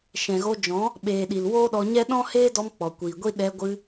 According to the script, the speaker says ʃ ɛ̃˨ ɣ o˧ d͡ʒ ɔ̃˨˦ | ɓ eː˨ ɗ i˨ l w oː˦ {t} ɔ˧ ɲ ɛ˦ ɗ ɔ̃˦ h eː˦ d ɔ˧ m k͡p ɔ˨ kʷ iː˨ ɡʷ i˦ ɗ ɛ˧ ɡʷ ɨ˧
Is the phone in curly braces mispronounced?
yes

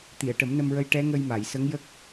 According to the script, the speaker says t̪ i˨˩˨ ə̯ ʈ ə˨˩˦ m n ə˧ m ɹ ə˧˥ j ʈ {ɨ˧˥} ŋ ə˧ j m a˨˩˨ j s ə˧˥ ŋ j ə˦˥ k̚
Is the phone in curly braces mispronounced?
yes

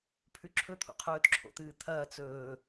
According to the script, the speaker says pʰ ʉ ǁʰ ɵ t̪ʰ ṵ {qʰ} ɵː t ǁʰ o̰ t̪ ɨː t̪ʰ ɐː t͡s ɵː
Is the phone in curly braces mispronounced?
no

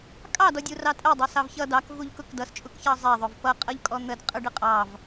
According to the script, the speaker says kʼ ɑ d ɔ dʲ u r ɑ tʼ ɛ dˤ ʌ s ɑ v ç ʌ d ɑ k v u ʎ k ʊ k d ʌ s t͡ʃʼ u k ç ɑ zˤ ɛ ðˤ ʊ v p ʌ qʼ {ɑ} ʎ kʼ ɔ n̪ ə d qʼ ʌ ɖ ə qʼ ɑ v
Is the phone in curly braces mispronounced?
yes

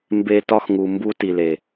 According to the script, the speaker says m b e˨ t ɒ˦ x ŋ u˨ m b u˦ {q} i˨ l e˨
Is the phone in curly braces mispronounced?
yes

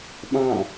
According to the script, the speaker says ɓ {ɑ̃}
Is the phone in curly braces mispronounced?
no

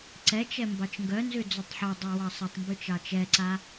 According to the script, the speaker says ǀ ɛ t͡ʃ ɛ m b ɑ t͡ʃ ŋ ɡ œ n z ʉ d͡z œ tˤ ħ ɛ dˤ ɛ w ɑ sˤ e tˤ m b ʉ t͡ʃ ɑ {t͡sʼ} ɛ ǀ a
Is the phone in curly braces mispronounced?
yes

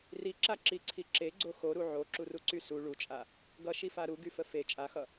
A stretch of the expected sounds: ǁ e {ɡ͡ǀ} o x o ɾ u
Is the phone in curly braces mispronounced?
no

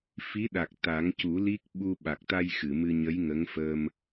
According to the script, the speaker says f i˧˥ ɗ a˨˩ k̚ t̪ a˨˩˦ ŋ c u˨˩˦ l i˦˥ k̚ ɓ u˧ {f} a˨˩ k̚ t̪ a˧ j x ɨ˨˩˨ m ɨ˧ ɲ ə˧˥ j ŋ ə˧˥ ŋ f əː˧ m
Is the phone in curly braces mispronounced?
yes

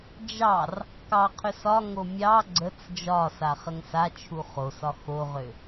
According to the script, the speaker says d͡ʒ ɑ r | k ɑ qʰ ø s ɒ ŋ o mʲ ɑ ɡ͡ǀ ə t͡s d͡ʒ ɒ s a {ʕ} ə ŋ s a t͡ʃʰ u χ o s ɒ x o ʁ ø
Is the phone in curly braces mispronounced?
yes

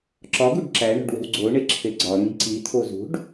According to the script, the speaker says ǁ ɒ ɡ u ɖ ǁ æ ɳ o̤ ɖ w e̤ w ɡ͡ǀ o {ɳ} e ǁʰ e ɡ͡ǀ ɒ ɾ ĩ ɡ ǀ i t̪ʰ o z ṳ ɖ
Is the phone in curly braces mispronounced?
no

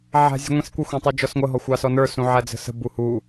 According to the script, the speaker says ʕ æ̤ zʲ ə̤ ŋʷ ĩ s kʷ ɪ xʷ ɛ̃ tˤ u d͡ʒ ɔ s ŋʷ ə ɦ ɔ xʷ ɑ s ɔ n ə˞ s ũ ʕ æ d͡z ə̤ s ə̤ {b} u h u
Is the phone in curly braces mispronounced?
no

